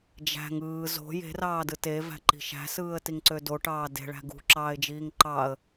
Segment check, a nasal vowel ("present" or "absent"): absent